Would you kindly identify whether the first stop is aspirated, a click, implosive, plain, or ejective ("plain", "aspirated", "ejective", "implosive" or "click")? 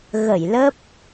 plain